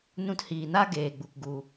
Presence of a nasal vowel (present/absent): present